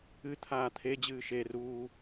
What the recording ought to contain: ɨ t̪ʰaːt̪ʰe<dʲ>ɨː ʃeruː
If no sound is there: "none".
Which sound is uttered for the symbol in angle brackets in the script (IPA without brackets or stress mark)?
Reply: d͡ʑ